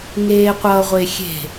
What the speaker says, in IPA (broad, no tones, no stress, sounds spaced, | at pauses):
ŋ eː qʷ ʌː ʁʷ e xʲ e̤